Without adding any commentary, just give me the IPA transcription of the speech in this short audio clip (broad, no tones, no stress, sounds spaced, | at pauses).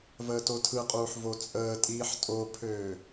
v əː t o tʰ ɯ qʼ uː ħ v o t͡sʼ əː tʼ iː ħ tʼ o pʰ øː